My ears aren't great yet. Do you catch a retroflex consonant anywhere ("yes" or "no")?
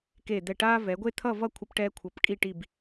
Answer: yes